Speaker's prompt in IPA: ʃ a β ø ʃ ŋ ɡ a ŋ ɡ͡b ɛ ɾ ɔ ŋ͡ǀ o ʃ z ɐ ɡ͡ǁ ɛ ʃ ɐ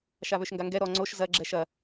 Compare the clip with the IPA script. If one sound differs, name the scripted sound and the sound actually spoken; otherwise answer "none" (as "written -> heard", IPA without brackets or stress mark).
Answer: ɡ͡b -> ɡ